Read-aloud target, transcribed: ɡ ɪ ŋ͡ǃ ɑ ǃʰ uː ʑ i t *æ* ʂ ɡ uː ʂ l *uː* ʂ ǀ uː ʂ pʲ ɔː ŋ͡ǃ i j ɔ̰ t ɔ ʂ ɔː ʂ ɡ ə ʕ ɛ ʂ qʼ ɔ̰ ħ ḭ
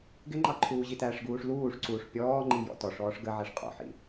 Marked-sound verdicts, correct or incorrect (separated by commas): correct, correct